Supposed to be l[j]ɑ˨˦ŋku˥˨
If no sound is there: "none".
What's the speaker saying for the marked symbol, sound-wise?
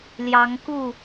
j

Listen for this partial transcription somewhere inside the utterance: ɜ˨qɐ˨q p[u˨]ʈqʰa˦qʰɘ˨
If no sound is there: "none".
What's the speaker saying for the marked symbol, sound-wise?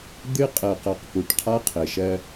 u˨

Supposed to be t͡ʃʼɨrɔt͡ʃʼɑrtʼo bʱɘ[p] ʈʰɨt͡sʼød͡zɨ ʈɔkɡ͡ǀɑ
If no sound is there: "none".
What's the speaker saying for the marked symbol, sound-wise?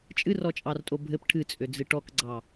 p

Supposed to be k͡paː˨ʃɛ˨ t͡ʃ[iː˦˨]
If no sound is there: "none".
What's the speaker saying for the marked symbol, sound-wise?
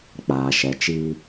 iː˦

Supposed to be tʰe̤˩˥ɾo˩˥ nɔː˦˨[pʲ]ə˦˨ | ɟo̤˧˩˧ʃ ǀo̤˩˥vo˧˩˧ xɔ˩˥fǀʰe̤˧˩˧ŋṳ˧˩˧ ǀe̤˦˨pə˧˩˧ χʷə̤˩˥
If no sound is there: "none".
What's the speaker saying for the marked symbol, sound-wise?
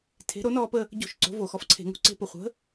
p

